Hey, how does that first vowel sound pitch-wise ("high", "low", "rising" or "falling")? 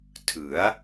rising